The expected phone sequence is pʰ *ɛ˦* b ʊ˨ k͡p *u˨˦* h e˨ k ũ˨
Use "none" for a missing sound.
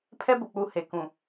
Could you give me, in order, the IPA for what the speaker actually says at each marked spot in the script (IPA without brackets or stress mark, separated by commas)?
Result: ɛ˦, u˨˦